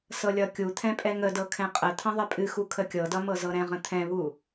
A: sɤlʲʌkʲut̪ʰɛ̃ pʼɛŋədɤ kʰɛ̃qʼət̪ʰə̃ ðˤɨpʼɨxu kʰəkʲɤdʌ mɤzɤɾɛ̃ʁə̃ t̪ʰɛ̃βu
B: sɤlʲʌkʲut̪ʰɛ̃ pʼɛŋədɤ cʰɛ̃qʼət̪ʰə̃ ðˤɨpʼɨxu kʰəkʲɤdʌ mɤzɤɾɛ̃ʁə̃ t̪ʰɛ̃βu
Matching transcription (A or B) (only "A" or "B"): A